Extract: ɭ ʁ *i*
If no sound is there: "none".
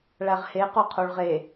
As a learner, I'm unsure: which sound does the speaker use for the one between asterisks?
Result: e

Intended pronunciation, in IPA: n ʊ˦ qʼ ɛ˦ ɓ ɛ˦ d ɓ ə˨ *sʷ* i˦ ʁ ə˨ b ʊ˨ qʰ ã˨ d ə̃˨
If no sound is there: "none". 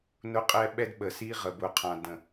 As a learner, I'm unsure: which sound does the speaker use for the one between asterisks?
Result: s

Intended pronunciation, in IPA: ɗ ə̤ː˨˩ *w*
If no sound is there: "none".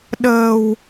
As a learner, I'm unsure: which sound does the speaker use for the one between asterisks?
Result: w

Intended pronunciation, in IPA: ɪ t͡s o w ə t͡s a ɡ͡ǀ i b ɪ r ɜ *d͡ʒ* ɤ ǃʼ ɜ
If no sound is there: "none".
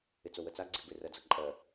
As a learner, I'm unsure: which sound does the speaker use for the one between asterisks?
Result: d͡z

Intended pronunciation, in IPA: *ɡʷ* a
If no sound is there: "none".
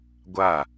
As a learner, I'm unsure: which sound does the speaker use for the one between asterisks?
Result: ɡʷ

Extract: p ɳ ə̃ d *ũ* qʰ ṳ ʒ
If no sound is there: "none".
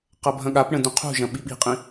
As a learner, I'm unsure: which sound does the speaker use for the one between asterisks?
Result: ũ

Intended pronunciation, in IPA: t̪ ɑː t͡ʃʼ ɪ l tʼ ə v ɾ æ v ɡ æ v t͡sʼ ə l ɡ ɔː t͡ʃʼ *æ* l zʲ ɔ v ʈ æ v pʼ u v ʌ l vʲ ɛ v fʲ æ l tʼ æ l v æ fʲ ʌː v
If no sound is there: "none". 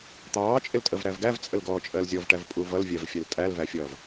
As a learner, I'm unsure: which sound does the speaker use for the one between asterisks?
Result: ɜ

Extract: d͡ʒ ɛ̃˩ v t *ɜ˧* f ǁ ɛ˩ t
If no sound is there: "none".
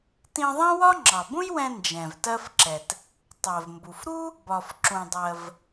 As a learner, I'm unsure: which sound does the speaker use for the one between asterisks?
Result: ɜ˧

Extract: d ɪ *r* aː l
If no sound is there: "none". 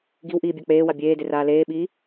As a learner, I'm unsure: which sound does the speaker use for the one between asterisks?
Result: r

